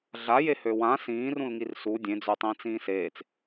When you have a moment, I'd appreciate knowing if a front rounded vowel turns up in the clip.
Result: yes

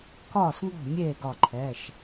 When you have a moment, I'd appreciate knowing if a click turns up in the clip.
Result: yes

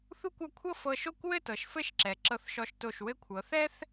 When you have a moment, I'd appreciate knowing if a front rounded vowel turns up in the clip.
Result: no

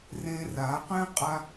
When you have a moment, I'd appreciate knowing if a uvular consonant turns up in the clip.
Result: yes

